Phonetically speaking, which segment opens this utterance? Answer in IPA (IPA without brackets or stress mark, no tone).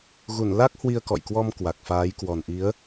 ɣ